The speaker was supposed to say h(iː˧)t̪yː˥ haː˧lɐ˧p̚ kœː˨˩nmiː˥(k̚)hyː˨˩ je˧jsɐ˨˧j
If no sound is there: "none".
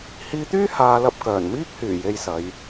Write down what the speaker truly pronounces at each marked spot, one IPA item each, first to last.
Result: iː˧, k̚

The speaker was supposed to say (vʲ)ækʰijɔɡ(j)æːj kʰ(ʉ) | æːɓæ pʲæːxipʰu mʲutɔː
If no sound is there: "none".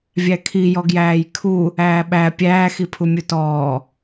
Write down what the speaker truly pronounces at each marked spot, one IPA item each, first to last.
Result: vʲ, j, u

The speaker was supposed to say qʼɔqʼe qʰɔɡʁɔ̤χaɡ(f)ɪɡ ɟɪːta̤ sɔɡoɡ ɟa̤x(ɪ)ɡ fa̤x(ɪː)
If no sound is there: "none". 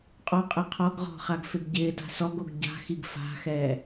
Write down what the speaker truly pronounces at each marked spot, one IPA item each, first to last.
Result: f, i, ɛː

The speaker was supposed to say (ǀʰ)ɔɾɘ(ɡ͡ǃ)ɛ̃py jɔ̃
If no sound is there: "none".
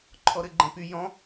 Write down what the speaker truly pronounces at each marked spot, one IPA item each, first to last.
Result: ǃʰ, ɡ͡ǃ

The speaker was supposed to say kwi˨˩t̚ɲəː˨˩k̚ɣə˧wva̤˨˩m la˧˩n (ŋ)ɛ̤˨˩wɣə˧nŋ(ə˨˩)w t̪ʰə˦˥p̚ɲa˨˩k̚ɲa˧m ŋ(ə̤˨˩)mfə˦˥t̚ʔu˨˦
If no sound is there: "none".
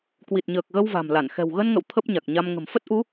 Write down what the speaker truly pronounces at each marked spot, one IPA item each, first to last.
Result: x, ə̰˧˨, ə̤˨˩

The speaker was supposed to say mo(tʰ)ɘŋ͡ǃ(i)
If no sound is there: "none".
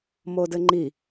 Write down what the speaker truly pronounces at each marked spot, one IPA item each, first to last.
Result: d, i

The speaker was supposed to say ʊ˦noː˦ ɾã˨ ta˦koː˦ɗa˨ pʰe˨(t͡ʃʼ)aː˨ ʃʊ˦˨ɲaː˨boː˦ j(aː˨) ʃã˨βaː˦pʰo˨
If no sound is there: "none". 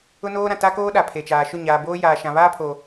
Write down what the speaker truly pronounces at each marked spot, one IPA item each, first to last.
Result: t͡ʃ, aː˨

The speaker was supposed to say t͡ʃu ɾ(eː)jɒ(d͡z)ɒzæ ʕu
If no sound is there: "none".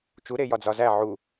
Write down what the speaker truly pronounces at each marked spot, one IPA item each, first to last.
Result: e, d͡z

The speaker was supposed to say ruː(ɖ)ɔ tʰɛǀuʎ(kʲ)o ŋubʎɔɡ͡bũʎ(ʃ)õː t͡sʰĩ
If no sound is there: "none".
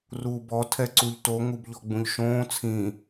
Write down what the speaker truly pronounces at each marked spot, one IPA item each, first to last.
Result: b, t, ʃ

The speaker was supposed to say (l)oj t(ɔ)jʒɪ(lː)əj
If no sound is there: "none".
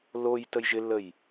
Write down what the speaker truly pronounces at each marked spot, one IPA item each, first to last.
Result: l, ə, lː

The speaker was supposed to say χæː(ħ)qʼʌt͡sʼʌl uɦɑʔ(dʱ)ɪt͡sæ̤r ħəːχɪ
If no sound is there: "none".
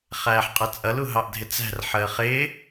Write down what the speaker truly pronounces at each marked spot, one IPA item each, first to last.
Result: ħ, dʱ

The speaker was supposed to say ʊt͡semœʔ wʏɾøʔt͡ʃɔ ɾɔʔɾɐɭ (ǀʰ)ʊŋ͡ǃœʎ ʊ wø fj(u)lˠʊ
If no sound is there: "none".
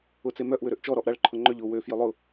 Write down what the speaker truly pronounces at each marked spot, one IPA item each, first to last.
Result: ǃʰ, ø

